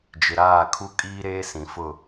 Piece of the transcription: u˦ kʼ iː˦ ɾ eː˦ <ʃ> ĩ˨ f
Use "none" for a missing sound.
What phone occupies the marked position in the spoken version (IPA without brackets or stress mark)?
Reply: s